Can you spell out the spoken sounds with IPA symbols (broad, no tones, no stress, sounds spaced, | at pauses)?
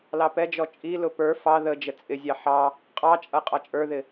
l ɑ p ɛ d͡ʒ ɔ t͡ʃʼ i l ʊ p ə˞ f ɑ ð ə d͡ʒ ə t͡sʼ ɪ zʲ ɑ ħ ɑ | qʼ ɑ t͡ʃʼ ʌ qʼ ɑ t͡ʃʼ ə˞ ð ɪ